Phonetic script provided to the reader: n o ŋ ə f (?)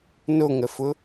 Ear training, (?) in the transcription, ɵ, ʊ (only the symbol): ʊ